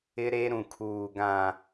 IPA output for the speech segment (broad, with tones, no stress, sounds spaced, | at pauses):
ɪ˦ ɾ e˦ ɾ ũ˨ kʰ uː˨ ɡ ã˨